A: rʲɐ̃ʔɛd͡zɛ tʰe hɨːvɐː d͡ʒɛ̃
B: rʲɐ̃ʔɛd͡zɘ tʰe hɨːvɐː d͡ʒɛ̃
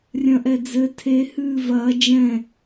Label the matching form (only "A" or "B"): B